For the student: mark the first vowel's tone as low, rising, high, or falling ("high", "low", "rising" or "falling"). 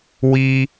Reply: high